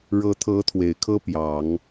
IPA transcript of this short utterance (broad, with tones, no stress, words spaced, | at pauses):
ɻɤ˧˥t̪ʰɤ˧˥ t̪ʰwe˨˩ɪ̯kʰɤ˥ pjɑ˨˩˦ŋ